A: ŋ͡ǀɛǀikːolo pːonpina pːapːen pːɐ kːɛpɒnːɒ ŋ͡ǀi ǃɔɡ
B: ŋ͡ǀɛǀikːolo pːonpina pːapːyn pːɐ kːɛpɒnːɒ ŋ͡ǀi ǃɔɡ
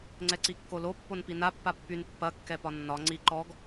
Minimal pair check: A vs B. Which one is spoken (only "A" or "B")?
B